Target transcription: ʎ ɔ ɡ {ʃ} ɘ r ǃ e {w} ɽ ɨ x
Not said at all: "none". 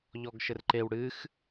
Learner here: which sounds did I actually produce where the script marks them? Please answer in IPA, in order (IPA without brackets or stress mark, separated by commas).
ʃ, w